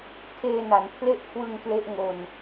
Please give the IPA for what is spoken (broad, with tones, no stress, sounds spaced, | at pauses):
tʰ eː˧ n a˩˦ n pʰ l e˥˩ ʔ kʰ w ɯ˧ ŋ k l e˦˥ ʔ ŋ o˧ n